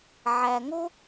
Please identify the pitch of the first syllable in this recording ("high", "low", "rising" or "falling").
low